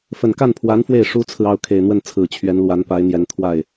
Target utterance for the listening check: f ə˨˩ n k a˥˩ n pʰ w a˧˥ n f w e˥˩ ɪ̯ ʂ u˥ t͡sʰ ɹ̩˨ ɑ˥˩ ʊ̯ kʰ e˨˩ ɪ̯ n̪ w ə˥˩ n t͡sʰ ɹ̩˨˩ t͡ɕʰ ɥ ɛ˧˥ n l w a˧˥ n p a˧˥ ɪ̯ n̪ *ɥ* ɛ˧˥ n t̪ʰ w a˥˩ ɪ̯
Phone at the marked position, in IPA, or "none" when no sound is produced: j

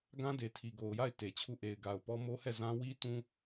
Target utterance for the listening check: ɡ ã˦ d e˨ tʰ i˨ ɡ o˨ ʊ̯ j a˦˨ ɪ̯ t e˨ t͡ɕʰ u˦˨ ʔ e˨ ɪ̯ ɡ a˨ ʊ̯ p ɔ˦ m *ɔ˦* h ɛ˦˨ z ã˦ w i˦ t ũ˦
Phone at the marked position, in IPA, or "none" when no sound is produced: o˦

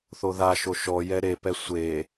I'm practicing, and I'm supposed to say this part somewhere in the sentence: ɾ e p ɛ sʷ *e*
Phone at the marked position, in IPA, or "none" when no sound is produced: e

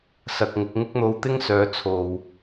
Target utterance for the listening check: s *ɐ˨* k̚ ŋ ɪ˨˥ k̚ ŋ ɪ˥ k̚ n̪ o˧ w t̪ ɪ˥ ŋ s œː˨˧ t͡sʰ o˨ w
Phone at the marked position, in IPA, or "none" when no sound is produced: ɐ˨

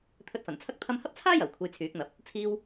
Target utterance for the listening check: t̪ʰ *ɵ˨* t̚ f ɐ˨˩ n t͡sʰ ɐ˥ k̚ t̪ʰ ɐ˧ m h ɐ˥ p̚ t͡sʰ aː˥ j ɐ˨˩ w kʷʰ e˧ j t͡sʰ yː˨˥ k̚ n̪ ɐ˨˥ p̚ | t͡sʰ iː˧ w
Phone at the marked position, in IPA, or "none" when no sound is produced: ɵ˧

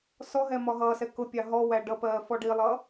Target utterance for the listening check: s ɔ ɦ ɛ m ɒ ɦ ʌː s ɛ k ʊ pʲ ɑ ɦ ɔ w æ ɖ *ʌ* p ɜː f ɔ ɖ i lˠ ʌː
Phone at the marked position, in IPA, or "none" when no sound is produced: ʌ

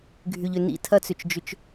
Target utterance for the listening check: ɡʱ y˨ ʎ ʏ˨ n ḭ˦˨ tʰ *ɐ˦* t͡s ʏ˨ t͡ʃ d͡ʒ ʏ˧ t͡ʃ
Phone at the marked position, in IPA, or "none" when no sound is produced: ɐ˦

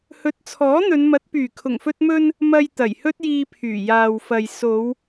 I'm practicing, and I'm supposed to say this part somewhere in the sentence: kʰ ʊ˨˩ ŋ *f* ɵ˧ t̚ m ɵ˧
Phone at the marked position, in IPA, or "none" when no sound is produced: f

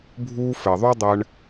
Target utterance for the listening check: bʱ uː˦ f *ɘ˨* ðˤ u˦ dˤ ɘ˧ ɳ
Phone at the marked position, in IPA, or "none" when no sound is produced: ɘ˨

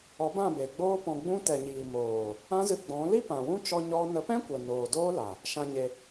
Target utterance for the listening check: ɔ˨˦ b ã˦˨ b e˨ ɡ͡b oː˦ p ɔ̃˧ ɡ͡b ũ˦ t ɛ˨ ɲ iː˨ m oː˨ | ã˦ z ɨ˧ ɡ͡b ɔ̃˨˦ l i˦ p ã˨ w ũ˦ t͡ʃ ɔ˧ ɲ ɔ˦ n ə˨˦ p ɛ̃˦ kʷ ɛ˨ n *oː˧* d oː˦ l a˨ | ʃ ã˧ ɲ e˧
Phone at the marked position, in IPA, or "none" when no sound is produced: oː˨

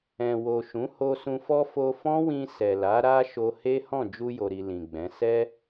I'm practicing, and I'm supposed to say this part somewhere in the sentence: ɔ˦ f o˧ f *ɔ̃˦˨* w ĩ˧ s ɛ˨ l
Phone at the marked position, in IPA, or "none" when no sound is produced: ɔ̃˦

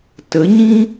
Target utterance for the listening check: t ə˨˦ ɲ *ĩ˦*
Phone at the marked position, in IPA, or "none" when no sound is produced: ĩ˦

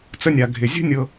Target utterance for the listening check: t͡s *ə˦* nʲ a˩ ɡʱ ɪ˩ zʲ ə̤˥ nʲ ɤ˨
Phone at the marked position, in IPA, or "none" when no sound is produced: ə˦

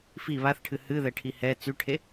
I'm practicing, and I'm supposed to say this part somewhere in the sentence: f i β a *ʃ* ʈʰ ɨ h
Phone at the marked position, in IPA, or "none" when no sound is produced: θ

